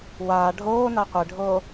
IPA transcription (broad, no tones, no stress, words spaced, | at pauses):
waː ɖʱoːna qʷeɖʱoː